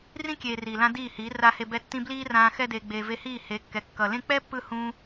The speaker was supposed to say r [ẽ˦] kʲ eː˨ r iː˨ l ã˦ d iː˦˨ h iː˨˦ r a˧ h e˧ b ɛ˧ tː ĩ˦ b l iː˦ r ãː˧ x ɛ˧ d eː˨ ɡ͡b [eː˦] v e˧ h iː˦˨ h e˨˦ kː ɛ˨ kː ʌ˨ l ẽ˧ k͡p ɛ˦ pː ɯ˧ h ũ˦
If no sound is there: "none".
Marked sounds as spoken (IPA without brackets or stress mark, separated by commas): ĩ˦, eː˨